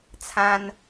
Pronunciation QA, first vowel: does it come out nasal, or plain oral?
nasal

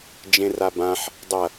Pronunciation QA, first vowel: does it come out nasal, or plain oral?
nasal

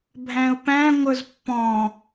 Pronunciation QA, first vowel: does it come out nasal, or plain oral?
nasal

